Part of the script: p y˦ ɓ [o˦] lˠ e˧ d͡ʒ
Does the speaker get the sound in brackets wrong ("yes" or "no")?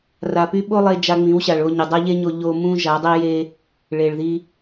no